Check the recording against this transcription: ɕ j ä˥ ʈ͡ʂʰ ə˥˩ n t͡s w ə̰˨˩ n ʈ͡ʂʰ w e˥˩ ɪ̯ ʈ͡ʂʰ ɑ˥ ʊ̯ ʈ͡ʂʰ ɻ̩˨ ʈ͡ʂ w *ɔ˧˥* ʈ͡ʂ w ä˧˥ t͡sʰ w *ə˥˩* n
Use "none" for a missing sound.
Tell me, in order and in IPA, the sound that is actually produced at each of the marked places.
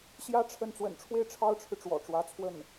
ɔ̰˨˩, ə˥˩

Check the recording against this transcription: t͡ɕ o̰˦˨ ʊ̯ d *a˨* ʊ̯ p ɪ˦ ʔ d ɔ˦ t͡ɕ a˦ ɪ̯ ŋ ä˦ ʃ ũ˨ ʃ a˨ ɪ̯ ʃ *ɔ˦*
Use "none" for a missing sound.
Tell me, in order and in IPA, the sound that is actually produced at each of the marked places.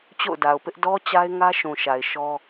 a˨, ɔ˦

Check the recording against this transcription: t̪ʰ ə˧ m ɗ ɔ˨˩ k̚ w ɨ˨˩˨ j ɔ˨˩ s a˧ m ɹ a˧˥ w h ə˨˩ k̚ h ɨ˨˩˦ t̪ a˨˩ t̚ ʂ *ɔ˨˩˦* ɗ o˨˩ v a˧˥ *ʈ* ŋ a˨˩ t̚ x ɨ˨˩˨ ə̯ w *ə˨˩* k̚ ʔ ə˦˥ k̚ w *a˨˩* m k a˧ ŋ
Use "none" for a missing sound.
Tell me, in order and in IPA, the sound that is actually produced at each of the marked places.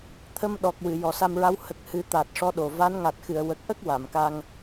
ɔ˧˥, n, ə˨˩, a˨˩˨

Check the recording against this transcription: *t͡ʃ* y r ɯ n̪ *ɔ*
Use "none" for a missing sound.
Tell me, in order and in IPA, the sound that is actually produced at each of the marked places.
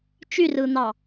t͡ʃ, ɑ

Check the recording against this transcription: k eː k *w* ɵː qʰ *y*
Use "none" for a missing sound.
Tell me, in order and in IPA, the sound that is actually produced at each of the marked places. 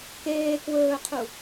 w, u

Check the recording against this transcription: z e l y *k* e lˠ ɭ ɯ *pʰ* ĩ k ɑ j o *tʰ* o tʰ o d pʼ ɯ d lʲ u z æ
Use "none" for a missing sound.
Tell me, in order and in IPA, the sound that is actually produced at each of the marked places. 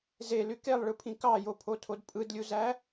k, pʰ, pʰ

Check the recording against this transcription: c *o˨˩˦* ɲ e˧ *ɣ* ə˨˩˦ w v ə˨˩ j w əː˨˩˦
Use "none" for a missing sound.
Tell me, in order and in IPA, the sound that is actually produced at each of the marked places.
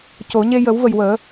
o˨˩˦, j

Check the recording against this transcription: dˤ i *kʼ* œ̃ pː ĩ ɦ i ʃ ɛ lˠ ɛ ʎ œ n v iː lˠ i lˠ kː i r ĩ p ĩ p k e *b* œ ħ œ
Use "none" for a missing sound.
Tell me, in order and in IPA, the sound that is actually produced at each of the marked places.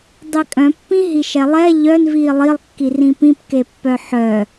kʼ, pː

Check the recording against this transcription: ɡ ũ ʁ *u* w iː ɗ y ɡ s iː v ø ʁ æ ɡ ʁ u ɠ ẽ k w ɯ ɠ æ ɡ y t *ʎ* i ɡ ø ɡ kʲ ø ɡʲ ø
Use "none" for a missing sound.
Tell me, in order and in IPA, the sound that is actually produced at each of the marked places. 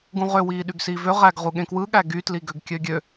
ø, l

